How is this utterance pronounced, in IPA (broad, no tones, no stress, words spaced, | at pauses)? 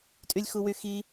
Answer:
tʼylʲxuwyxi